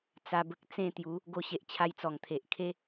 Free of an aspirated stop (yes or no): no